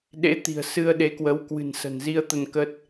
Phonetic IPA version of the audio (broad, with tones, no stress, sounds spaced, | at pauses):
ɗ ḛ˧˥ t̪ i̤˨˩ ə̯ s ɨ˧ ə̯ ɗ e˨˦ k w ə˨˦ w k w ɨ̤˨˩ n s ə̤˨˩ n z i˧ ə̯ t̪ ə˧ n k ə˦˥ t̚